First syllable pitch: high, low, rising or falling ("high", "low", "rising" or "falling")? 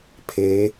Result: rising